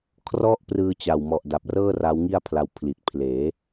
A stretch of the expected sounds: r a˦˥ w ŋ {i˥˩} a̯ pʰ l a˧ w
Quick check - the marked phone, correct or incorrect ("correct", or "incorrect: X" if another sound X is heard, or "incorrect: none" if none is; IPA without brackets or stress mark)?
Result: correct